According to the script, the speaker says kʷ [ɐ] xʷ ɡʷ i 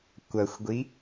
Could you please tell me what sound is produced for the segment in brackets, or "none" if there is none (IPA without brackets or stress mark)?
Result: ɐ